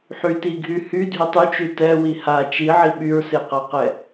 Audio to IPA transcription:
ħytiɡʱy hydʱy tˤyt͡ʃy tɛwi ha t͡ʃiʕi ɓyɹseqaqɛ

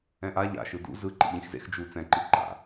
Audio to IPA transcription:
ɛ̃ʔa ʎa̰ʃɯ dṵ zɯ ǃḭʎĩxzḛx d͡ʒu t͡sɛ̃ǃi ǃa̰

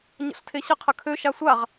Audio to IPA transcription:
ɲə̰ɬtʰeɕə qʰəkʰø ʃasʷaʁ

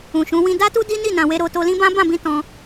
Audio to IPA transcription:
ũ˨ʃũ˨˦ wĩ˧da˦tu˦ di˦ni˦˨nã˨we˧ ɾo˧to˧lĩ˦bã˦ bã˦˨bĩ˧ tɔ̃˧

